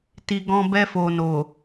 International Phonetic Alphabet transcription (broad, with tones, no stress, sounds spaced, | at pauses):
t i˧ ɡ ɔ̃˧ b ɛ˧ f o˨ n o˨